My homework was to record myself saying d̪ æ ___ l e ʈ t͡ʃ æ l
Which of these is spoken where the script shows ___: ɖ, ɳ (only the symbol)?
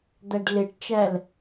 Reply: ɖ